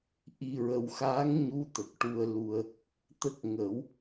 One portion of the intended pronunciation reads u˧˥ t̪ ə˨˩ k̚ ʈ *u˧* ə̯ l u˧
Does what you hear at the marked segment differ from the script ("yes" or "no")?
no